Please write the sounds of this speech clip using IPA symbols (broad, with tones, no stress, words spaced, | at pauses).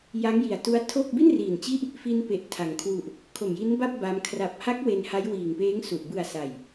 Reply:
ja˦˥ŋji˨˩a̯tu˦˥a̯ tʰo˥˩k̚ bi˥˩nriː˨˩nt͡ɕi˦˥ʔ | fi˧npe˨˩ʔ tʰa˩˦ŋ kʰwu˨˩ʔ | kʰo˨˩mji˦˥nba˥˩p̚ ba˦˥m kʰra˨˩p̚ha˦˥k̚ we˧nha˦˥jwiː˨˩ŋpeː˦˥ŋ su˨˩ʔ bɯ˨˩a̯ sa˨˩j